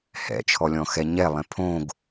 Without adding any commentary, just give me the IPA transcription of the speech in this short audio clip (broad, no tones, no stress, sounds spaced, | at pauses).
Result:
h ɛ̰ t͡ʃʰ ɔ lʲ ɔ̃ x ɛ ɲ ɛ lˠ ɛ̃ pʰ õ ɡ